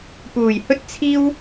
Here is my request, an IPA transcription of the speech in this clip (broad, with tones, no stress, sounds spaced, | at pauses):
p uː˨˩ j h ɵ˥ t̚ t͡sʰ iː˥ w